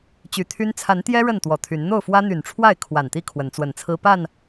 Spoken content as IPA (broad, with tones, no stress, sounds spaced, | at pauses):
t͡ɕ y˨˩ t̪ʰ y˦ n t͡sʰ a˨˦ n t̪ j ɛ˦ ɻ ə˥˨ n t̪ w ɔ˨˩ t̪ʰ y˨˦ n n̪ o˥˨ ʊ̯ f w ä˦ n̪ y˨˩ n ʈ͡ʂʰ w a˥˨ ɪ̯ kʰ w a˨˩ n t̪ i˥˨ kʰ w ə˨˦ n t͡s w ə˨˩ n t͡sʰ ɹ̩˦ p a˥˨ n